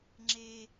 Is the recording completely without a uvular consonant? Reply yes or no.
yes